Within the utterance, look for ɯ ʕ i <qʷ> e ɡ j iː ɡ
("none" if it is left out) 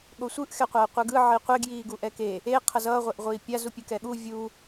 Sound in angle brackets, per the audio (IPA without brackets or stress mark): qʷ